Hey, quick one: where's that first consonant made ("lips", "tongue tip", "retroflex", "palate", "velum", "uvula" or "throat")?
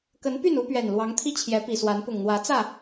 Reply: velum